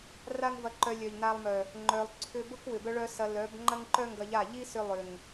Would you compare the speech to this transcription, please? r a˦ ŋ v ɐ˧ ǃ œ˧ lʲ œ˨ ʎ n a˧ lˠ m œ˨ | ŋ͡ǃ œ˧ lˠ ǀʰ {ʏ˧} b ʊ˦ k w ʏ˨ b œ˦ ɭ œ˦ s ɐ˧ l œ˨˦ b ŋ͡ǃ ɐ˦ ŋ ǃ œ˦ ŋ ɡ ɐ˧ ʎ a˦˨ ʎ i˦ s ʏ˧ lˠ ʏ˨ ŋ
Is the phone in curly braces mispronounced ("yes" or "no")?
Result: no